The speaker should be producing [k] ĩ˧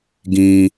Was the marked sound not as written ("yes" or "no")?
yes